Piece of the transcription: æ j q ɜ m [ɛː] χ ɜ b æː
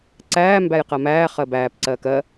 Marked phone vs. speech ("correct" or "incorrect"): incorrect